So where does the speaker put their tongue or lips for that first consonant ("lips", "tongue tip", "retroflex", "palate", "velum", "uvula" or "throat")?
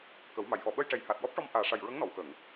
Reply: velum